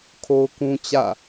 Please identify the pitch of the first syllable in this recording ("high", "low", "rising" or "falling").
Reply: high